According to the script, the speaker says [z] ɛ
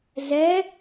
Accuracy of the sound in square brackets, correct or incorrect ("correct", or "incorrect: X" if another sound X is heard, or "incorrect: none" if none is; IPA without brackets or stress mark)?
correct